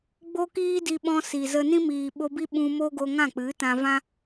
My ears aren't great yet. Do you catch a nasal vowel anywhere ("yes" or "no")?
yes